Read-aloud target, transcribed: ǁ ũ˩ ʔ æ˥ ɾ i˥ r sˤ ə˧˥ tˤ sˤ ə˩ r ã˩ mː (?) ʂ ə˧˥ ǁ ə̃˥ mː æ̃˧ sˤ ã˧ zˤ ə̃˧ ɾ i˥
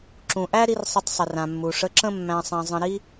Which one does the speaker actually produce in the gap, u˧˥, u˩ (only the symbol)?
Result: u˩